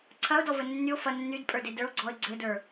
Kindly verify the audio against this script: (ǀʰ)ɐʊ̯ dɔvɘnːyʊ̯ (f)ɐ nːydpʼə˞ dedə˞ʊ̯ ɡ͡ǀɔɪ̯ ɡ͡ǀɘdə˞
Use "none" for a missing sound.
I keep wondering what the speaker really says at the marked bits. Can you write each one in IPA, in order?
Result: ǀʰ, f

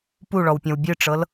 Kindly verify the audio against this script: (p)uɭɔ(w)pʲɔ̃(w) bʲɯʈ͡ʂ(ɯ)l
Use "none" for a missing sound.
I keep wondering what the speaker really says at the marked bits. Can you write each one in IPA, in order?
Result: p, w, w, ɤ

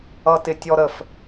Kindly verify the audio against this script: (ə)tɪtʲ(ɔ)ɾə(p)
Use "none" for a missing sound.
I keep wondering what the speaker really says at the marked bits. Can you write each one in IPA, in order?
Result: ʌ, ɔ, f

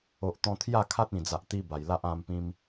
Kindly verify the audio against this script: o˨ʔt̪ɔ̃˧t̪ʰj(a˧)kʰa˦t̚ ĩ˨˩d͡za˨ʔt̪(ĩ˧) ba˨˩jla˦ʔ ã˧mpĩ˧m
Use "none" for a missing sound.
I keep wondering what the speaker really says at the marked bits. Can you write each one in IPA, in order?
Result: a˥˧, i˧

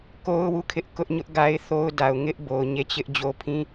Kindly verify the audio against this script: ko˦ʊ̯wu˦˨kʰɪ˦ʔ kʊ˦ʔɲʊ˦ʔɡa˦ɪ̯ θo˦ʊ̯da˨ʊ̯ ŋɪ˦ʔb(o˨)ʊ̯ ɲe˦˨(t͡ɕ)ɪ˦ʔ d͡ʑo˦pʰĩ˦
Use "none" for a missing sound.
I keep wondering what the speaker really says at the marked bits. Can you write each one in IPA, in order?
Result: o˨, t͡ɕ

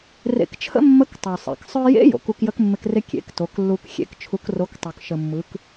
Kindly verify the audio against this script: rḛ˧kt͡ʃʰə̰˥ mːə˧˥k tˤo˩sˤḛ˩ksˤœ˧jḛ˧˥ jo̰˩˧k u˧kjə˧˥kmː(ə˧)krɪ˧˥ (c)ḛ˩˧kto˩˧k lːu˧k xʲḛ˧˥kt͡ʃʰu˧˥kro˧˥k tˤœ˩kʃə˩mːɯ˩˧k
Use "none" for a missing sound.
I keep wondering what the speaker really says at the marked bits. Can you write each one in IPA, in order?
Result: ɪ˧, kʲ

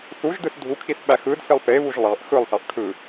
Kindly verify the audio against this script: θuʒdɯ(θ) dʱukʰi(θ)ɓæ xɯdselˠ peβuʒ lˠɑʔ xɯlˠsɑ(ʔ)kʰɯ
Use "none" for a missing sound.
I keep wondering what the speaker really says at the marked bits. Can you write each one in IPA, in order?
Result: s, θ, ʔ

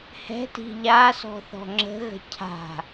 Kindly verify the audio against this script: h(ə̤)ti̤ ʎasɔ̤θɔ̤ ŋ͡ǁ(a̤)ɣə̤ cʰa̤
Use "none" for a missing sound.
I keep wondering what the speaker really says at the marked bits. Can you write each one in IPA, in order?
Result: ɛ̤, ə̤

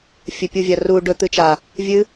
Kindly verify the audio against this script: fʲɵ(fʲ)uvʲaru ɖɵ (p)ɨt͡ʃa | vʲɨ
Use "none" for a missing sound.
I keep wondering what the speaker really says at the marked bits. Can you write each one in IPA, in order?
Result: pʲ, t̪

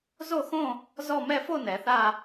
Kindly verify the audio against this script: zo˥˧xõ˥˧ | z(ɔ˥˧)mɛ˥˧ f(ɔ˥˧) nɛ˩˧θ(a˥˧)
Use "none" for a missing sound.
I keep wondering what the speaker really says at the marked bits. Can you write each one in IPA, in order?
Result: ɔ˥˧, o˥˧, a˥˧

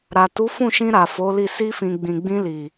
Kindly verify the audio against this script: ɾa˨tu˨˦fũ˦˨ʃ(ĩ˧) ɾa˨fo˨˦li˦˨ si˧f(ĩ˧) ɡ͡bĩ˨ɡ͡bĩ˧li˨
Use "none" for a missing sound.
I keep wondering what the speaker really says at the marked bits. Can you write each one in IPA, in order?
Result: ĩ˧, ĩ˨

